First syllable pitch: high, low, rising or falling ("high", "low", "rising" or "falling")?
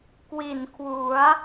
low